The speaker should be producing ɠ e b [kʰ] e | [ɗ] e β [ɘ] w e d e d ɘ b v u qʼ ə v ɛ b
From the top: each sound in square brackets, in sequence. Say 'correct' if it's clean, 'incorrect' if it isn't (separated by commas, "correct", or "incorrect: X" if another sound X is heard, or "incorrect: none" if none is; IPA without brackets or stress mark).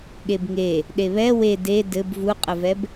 incorrect: ŋ, correct, incorrect: ɛ